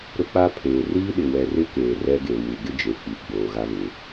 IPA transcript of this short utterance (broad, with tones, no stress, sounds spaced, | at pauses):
ɾ ʊ˦ k͡p a˦ pʰ eː˨ r iː˦ ɗ ɪ˨ w ɛ˨ r ɪ˦ k eː˨ r ɛ˦ ɡ e˨ w u˨ ɡ ɪ˦ d͡ʒ e˨ k͡p i˨ ɡ͡b oː˨ ɣ a˦ β ɪ˨˦